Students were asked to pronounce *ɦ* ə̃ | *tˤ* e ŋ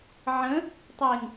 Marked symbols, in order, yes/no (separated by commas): no, yes